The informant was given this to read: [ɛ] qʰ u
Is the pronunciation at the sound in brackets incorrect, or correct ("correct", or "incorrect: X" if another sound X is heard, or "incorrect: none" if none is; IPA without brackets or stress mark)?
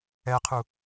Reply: correct